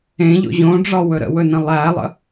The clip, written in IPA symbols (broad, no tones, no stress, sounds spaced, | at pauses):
ẽ ʎ o̰ ʑ õ ɖ͡ʐ ɒ w ɵ ɾ ə̰ w ɵ n ə̃ lˠ æ lˠ ə̰